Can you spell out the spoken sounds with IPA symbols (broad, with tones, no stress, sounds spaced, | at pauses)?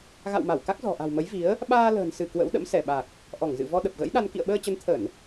ɣ a̰˧˨ w m a˧˩ w k a˦˥ k̚ z ɔ̤˨˩ ʔ a̤˨˩ w m ə˨˦ j v i˨˦ ə̯ | ɓ aː˧ l ə̤ː˨˩ n s ɨ˧˩ k w ə̰˧˥ w ɗ ə̰˧˥ m s ɛ˧˩ ɓ a˨˩ k̚ | ʔ ɔ˧˩ ŋ z ɨ̰˧˨ v ɔ˧ ɗ ə˨˩ p̚ ɣ ə̰˧˥ j ɗ a˧ n k ḭ˧˨ ə̯ ɓ əː˧ t͡ɕ ə˨˦ n t̪ʰ ə˧˩˨ n